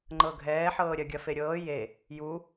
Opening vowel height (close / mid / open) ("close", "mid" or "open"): mid